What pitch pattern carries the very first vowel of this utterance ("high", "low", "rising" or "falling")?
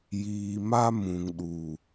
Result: low